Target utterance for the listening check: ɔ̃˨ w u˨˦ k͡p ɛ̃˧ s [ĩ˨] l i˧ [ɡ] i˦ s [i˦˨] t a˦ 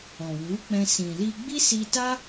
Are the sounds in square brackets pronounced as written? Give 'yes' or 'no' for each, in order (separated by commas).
yes, no, no